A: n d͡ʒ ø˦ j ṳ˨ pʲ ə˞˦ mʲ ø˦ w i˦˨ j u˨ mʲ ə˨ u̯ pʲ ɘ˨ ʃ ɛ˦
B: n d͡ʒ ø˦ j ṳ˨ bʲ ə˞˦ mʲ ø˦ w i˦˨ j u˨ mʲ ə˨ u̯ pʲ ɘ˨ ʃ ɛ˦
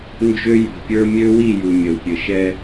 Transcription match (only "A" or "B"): A